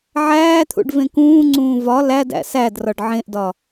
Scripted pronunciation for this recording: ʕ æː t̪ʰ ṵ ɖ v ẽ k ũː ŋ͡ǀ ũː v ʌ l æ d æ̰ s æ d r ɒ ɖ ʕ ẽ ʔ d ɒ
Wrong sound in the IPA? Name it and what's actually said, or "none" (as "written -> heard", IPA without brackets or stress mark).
ʌ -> ɒ